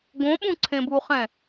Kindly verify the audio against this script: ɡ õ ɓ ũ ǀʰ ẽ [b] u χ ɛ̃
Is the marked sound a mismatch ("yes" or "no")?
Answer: no